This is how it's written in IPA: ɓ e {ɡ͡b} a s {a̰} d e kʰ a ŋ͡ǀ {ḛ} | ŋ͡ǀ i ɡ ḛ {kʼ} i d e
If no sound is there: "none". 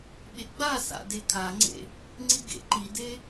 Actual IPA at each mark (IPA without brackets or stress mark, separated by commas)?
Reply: ɡ͡b, a̰, ḛ, ǃ